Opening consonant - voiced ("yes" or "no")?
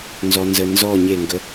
yes